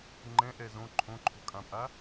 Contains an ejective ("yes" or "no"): yes